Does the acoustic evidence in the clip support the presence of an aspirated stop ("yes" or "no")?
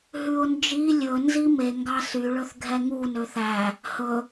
no